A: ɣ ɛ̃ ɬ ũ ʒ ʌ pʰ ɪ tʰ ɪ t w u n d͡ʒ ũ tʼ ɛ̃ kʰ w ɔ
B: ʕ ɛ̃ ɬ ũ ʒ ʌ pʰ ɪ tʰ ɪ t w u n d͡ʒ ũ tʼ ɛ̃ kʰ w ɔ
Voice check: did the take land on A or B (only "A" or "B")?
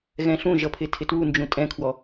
A